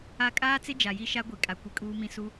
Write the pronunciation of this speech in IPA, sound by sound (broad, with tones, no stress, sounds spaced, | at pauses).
a˦ kʼ aː˦ t͡s ɪ˦ d͡ʒ a˨ j i˦ ʃ a˦ ɡʷ i˨ kʼ a˨ kʷ i˨ kʼ uː˦ m ĩ˦ s u˦